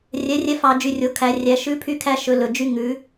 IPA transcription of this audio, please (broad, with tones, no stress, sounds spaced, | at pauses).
rʲ ɛ˨˥ rʲ ɛ˦ f ɑ˧˩˧ d͡ʒ y˩˧ rʲ o˩˧ kʰ æ˩˧ rʲ æ˩˧ ʃ ʉ˨˥ pʰ y˦ kʰ æ˦ ʃ ɵ˩˧ l ɵ˩˧˩ d͡ʒ y˦ ŋ ʉ˨˥